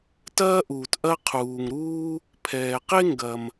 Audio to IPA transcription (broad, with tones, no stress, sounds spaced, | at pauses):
t ɐː˥ ʔ uː˩ t ʔ ɐ˥ qʰ uː˩ ŋ ɾ uː˥ | pʰ ɛː˩ q e˥ ŋ ɡ ɐ˩ m